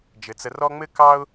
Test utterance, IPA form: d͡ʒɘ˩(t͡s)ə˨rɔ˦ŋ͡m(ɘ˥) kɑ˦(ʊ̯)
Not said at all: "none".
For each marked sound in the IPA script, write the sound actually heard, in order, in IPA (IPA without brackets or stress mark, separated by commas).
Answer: t͡s, ɘ˥, ʊ̯